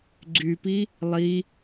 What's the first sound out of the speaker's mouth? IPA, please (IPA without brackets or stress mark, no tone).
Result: ɡ͡ǀ